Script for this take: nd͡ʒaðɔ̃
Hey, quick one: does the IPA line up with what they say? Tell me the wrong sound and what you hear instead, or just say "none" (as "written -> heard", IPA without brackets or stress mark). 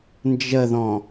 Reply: a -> ə